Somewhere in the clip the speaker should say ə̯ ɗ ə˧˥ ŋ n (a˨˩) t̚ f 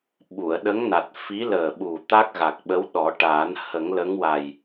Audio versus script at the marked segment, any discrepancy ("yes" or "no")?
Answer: no